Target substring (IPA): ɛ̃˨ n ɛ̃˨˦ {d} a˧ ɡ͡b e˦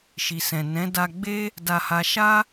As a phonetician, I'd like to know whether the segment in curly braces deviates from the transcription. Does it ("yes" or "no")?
no